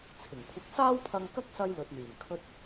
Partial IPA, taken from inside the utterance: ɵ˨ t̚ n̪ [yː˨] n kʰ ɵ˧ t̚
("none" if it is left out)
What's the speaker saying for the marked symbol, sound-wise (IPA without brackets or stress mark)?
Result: yː˨˩